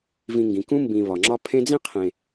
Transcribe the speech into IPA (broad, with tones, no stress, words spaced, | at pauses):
vĩ˨ŋɡĩ˩kũ˦ mbĩ˨βɒ˩ŋ͡ǁɒ˥ pʰẽ˦d͡zĩ˥qʰẽ˨